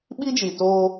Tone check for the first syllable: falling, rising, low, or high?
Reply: high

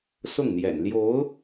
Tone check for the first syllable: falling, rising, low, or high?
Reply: falling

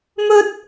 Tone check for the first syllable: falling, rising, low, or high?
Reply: high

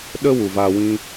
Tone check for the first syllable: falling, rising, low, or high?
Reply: high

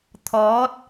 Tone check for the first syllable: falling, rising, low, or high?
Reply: rising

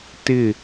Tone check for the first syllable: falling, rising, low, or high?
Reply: falling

